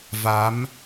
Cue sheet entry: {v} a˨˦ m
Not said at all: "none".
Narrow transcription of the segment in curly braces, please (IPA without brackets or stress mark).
v